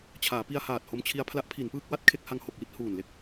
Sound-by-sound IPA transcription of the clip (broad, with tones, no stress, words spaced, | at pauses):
t͡ɕʰaː˩˦pi˧a̯haː˨˩t̚ ho˧mt͡ɕʰi˧a̯ pʰla˦˥ʔpʰi˩˦npɯː˥˩k̚ wa˥˩t̚kʰe˥˩k̚ha˧ŋ ho˨˩k̚ji˥˩t̚ huː˨˩nle˥˩k̚